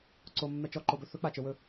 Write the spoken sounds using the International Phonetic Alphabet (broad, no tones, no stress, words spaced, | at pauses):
ǀomːɛ t͡ʃɔǃobɵ θɵk͡pat͡ʃə˞wɵ